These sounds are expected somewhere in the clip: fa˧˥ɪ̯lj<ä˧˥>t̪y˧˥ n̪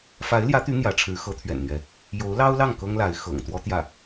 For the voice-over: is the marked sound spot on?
yes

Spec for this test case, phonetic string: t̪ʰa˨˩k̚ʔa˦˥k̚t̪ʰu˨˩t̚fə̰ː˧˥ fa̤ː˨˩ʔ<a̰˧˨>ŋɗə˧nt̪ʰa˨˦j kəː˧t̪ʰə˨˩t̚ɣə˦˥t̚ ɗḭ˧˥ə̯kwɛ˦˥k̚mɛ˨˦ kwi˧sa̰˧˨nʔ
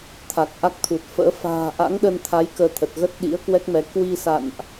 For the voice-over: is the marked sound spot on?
no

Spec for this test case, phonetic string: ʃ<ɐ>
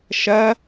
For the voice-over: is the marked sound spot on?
yes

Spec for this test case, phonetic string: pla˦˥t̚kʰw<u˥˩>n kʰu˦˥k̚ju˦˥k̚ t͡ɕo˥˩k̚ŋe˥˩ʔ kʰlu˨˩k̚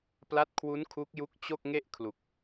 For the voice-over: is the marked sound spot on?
no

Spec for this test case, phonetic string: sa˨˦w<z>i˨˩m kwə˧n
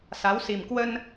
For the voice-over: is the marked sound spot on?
no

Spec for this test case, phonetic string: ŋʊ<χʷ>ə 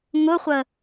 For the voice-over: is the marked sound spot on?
yes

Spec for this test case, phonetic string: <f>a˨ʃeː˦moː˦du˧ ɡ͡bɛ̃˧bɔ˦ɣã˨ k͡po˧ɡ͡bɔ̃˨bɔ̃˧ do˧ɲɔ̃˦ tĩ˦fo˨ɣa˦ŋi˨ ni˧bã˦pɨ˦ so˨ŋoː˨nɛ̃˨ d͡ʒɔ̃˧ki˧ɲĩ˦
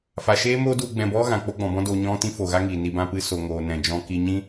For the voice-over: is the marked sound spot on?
yes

